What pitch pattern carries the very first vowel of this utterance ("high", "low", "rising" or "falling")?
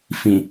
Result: low